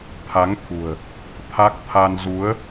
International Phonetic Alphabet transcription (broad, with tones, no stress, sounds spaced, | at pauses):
t̪ʰ a˨˦ ŋ t̪ʰ ṳ˨˩ ə̯ | t̪ʰ a˦˥ k̚ t̪ʰ a˧ n z u˨˦ ə̯